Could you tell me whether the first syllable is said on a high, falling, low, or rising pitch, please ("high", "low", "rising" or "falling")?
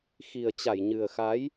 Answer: low